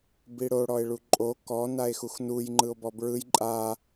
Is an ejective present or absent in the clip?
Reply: present